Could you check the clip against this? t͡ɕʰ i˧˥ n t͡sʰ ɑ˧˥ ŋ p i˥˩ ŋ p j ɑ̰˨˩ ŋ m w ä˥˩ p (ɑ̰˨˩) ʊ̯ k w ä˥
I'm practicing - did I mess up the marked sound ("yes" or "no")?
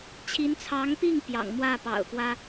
no